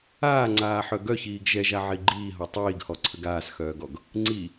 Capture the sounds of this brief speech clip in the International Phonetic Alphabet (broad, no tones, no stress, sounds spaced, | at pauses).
aː ŋ͡ǀ aː ħ œ ɡ œ ç iː ɡ ʒ ɛ ʒ a ʕ i ɡ͡ǃ iː ɦ ɔ tˤ iː ɡ h ɔ ǀʰ ə ɡ aː s x œː ɡ ɔ ɡ | ŋ͡ǀ i